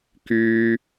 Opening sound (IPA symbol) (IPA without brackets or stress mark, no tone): k